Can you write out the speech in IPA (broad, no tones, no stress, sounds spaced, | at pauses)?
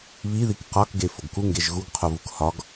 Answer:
β i ð i k q ɒ k ɡ e f o ɡ k u ŋ ɡ e ʒ ɣ u ɡ qʰ o v u k h ɒ ɡ